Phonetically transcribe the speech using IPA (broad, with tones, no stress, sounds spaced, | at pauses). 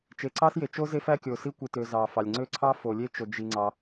t͡ʃ e˨ ǀ ɑ˥ s j e˨ t͡ʃ o˥ z e˥ f æ˥ kʲ o˨ s i˥ kʷ i˨ t ø˨ z ɑ˨ f ɑ˨ lʲ ŋ͡ǀ ø˥ ǀʰ ɑ˥ f o˨ lʲ e˥ t͡ʃ o˨ d͡ʒ i˨ ŋ͡ǀ ɑ˨